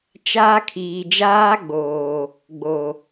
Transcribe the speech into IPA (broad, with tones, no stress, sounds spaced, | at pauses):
t͡ʃ aː˦ kʰ iː˨ d͡ʒ aː˦ ɡ͡b oː˨ | ɡ͡b o˨